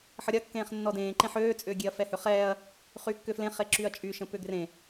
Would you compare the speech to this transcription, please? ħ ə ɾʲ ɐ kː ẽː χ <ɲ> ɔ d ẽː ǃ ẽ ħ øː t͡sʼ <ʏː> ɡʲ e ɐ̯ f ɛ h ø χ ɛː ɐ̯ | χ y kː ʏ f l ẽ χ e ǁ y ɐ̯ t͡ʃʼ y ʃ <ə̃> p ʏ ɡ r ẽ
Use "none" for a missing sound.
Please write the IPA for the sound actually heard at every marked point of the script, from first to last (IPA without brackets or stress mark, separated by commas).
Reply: nː, ʏː, ə̃